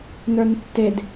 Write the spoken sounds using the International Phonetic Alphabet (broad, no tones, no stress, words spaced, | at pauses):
nə˞ntːed